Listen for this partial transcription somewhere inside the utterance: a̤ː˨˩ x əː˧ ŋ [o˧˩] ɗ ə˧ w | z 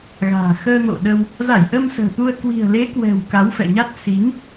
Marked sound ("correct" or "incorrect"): incorrect